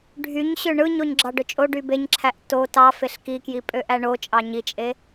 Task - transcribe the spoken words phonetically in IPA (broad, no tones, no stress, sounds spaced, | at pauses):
ɖʱ y ɲ ɕ ø ɳ ɯ ɲ o ɲ ɡ͡ǁ ɑ ɖ ø t͡ʃʼ o ɖ y b e ɲ ǁʰ æ ʔ t o t ɑ f e ɬ k i k j i pʼ ø ʔ æ ɳ o t͡ʃʼ ɑ ɲ i t͡ʃʼ e